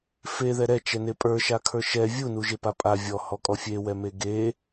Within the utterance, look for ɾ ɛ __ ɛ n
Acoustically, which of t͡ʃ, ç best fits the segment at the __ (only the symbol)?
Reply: t͡ʃ